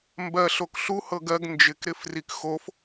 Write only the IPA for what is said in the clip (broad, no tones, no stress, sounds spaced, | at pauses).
m b ɜ ɬ o k ɬ u h ɤ ɡ ɜ ɡ n d͡ʒ ɪ k ɾ ɪ f r i k x o f